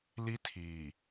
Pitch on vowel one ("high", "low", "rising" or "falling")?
high